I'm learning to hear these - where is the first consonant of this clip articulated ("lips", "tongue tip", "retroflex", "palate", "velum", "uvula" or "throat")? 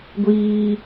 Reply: velum